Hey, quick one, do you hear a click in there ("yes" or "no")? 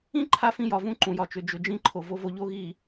yes